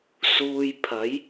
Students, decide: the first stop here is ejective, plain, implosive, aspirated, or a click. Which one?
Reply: aspirated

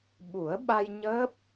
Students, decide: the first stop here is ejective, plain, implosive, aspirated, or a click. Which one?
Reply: implosive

